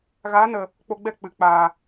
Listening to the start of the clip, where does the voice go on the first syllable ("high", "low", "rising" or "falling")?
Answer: rising